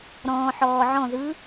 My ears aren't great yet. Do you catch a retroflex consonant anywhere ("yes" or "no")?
no